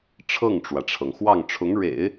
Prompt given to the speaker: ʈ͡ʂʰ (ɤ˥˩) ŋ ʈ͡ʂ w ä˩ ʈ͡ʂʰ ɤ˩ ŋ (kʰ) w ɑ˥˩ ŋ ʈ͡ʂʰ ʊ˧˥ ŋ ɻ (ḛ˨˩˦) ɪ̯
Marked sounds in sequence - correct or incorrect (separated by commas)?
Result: correct, incorrect, correct